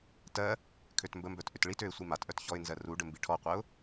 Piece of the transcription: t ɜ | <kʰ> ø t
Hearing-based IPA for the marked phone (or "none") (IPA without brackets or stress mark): kʰ